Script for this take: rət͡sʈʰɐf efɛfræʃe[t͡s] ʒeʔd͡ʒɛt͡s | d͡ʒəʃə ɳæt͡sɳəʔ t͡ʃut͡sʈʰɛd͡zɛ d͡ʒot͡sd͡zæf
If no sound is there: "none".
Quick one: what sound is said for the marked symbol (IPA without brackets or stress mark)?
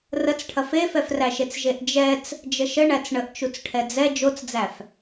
t͡s